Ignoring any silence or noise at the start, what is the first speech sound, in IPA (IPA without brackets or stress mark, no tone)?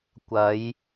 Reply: kʷ